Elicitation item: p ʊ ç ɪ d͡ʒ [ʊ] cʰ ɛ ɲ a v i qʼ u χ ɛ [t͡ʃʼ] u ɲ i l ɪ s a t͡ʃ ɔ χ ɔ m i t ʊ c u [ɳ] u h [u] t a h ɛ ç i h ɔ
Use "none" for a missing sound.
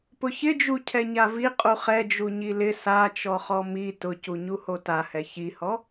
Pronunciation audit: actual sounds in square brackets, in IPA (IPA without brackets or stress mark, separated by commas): u, d͡ʒ, ɲ, o